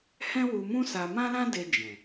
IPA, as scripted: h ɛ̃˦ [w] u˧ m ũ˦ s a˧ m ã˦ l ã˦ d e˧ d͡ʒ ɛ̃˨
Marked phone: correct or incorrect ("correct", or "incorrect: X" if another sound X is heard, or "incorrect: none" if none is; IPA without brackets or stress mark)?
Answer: correct